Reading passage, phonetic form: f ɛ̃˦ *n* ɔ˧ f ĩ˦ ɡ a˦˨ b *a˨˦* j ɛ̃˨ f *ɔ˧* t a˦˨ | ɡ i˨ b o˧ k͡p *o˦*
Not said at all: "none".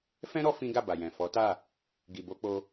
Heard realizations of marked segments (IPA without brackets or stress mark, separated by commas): ɾ, a˨, ɔ˨˦, o˧